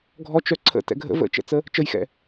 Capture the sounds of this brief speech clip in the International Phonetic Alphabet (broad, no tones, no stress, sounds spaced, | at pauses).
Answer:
ɡʱ ɔ t͡ʃ œ ǀʰ ə̰ t ɛ̰ ɡʱ ə̰ v ə̰ t͡ʃ ɛ̰ t͡s ə | t͡ʃ ə j x ɛ̰